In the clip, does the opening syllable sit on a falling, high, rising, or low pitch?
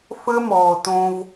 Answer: high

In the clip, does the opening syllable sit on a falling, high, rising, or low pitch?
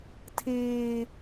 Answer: high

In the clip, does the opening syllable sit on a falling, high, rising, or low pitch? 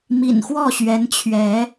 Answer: low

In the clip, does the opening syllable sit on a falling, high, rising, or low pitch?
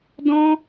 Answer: high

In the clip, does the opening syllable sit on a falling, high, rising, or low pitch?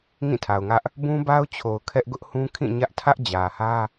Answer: falling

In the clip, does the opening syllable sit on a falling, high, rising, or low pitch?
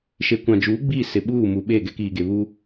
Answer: low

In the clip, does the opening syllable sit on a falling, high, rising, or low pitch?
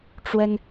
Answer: high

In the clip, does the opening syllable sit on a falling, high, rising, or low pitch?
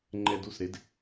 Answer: high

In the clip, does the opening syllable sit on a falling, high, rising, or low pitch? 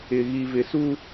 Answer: low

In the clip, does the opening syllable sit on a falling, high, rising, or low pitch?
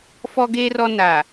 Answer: high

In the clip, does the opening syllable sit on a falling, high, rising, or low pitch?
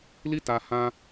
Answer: high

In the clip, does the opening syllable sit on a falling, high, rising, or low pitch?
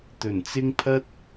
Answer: low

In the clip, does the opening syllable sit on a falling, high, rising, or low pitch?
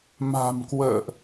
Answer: low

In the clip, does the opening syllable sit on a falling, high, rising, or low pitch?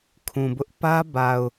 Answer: low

